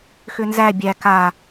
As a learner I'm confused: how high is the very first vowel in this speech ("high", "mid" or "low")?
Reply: high